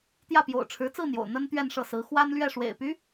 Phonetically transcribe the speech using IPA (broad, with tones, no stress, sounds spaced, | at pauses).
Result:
t̪ j ä˥˩ p j o̰˨˩ ʊ̯ ʈ͡ʂʰ ɻ̩˧˥ t͡s ɹ̩˥˩ n̪ j o̰˨˩ ʊ̯ n̪ ə˥ n t̪ ɥ ɛ˥˧ n ʂ ɤ˥˩ s ɹ̩˧˥ x w a˥ n l ɥ ɛ˥˩ ʂ w ḛ˨˩ ɪ̯ p y˧˥